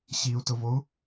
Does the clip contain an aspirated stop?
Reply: no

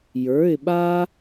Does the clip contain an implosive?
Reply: yes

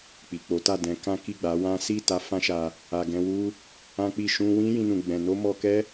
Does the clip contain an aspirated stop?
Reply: no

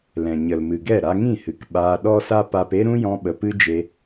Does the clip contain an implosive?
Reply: yes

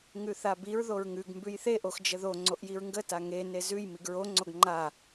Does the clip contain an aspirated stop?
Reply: no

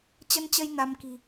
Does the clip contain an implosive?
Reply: no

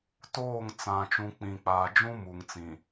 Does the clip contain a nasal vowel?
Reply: yes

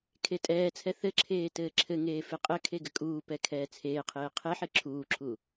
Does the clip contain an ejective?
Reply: yes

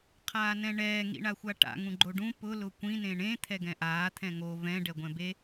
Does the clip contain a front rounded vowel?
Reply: no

